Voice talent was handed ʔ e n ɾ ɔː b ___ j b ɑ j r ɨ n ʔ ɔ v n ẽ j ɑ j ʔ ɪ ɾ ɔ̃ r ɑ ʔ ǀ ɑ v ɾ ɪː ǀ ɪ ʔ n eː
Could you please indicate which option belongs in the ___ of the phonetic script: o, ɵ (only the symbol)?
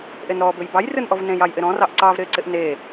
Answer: ɵ